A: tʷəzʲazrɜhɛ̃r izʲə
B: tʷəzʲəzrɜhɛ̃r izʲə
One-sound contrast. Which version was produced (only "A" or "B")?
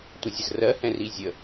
B